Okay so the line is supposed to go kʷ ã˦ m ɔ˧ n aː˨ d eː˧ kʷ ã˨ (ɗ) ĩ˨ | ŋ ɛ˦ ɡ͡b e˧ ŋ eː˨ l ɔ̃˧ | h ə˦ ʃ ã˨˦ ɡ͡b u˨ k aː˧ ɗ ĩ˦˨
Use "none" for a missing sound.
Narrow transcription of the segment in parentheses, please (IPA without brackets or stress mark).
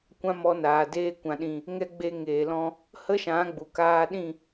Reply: ɗ